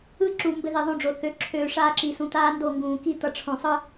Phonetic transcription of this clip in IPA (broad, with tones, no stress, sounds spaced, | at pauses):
ɯ˦ ǁ u˨ m b ɘ˦ ð i˨ ðˤ õ˦ ɖ͡ʐ o˨ θ ø˨ ǁʰ øː˨ ʂ aː˦ ǁ i˨ s ũ˨ t̪ aː˦ n d o˦˨ ŋ ɡ ũː˨ k i˦ t̪ ʌ˨ ʈ͡ʂʰ õ˨ sˤ ɯ˦